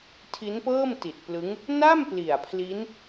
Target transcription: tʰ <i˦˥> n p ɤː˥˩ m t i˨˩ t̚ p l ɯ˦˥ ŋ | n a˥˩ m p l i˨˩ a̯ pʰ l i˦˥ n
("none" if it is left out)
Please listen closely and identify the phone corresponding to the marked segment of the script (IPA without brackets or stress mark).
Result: i˦˥